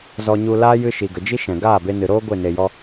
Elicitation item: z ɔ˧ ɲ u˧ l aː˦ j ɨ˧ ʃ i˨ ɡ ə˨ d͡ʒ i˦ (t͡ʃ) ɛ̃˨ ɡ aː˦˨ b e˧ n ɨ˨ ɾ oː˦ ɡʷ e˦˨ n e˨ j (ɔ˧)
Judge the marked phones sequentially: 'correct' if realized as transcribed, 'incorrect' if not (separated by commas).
incorrect, correct